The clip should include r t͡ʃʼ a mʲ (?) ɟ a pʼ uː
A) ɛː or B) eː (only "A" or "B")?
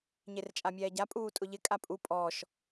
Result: A